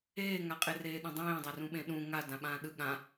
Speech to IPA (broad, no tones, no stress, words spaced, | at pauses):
eːŋaqʼereː ɗẽdˤẽːdˤarũ ɓẽɗũ ŋa dãɓãːɗɯ ɠã